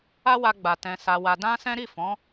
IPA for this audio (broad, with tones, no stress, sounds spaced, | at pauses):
a˦ w a˧ ɡ͡b a˨ t ɛ̃˨ s a˧ w a˧ d ã˦ s ɛ̃˦ ɾ i˦˨ f ɔ̃˨˦